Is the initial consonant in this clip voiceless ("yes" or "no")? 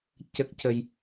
yes